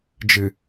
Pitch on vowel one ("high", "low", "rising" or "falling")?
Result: low